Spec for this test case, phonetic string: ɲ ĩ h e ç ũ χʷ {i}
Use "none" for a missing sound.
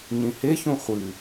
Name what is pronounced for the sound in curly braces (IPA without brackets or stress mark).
ɨ